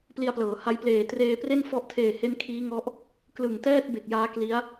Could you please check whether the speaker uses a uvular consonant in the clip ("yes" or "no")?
no